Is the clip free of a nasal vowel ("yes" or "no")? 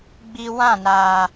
no